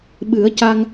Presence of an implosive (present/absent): present